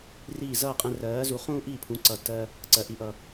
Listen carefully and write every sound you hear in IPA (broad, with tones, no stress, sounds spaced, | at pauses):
r iː˥˩ z ʌː˥˩ qʼ ɛ̃˧ r ɜː˩˥ z u˩˥ χ ũː˥ ʔ iː˥˩ pʰ ũ˩˥ ǀ ʌ˩ t ɜ˧ | ǀ ɜ˩ ʔ i˩ ʔ ʌ˩